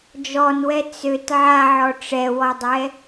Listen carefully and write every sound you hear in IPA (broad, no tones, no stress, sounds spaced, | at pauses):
d͡ʒ ɔ n w ɛ t͡s ø t ʕ a ʕ ɔ ʈ͡ʂ ɛ w ɔ dˤ ɛ